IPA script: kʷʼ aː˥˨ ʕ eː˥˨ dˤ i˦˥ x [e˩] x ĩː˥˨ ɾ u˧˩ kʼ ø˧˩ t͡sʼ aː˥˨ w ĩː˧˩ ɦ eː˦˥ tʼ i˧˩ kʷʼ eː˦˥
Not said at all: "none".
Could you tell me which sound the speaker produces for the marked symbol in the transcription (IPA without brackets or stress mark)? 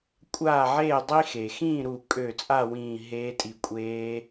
e˩